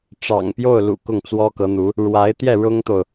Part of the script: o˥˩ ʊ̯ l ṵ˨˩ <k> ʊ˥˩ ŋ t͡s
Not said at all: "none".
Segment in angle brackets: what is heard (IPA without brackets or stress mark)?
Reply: k